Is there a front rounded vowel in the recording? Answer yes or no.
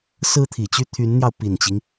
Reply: yes